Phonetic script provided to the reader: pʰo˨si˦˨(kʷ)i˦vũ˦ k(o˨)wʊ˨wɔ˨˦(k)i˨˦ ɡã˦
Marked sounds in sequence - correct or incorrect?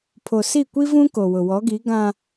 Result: correct, correct, incorrect

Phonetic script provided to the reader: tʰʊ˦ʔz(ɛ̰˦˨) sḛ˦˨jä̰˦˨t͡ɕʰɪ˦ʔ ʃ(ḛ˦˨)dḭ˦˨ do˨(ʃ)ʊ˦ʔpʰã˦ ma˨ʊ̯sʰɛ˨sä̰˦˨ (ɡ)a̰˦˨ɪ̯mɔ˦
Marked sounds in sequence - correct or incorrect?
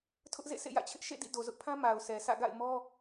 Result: incorrect, correct, incorrect, correct

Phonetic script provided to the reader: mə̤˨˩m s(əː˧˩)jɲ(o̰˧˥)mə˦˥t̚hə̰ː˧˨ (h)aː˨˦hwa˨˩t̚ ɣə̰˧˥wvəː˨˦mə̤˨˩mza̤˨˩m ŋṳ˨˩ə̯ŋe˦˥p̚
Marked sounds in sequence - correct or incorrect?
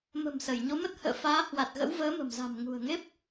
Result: incorrect, incorrect, incorrect

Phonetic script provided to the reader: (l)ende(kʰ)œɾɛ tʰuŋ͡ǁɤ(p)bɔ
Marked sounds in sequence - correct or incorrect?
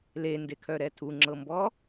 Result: correct, correct, incorrect

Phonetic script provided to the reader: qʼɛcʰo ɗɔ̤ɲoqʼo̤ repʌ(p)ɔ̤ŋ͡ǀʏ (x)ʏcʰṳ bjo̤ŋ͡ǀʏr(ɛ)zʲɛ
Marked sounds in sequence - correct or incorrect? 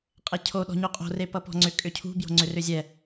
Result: correct, incorrect, incorrect

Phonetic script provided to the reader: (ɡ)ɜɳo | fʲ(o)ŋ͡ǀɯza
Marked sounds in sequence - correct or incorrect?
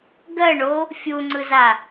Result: correct, incorrect

